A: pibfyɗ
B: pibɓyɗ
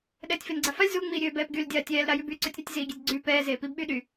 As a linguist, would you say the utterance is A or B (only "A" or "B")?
B